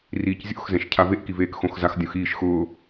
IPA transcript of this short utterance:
r iː c zʲ o̰ x z ɛ̃ ʃ cʰ a v e ʔ k i v eː k x õ x z a x dʲ õ x iː ʃ x ʊː

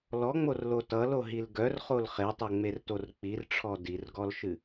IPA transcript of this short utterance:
l ɔ ŋ͡m o r l o t ʌ l o ɦ i l ɡ œ r χ o l χ e tˤ o ŋ͡m e r t o r k͡p i r ʈ͡ʂʰ ɔ d i r ɡ ɔ l ʃ ɨ

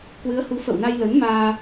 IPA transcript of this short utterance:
k w ɨ˨˦ ə̯ h u˨˦ f ə̰˧˨ w n a˧ j l ə˨˦ n m aː˧

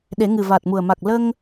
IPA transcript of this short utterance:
ɗ e˨˩˦ ŋ ɨ˨˩ v aː˨˩ t̚ m u˨˩ ə̯ m a˨˩ k̚ l ə˧ ŋ

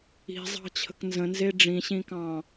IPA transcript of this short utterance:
i̤ zˤ ɑ̤ t͡ɕʰ ə̤ k n z ə̃ n z e ɖ͡ʐ ĩ ɕ ĩ k ɑ̃

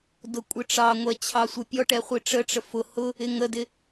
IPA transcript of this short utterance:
d ʊ kʷʼ ɪ ʈ͡ʂ ɑ ŋʷ ɛ t͡ɕʰ ɑ sʷ ʌ pʲ ɔ ʈ ɛ χʷ i ʈ͡ʂ ə ʈ͡ʂ ə f ʊ h ʊ | ɪ ŋ ə d ɪ

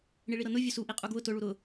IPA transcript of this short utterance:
ɳ i ɭ i ɾ ɤ n ʊ vʲ ʊ s u ʔ i qʼ u ɡ w ʊ t ʊ ɭ u ɾ ʊ

